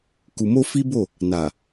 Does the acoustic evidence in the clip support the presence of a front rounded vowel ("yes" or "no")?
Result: no